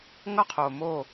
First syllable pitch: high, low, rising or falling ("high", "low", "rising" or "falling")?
falling